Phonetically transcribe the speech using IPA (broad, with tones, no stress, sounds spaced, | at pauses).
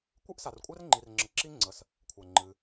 kʷ ɨ˥ ʔ s a˨ r kʷʼ ɛ˥ r ŋ͡ǃ i˨ r ŋ͡ǁ ə˨ ǁ i˥ ŋ͡ǀ ə˨ s | kʷʰ ɛ˩ ŋ͡ǃ ɨ˨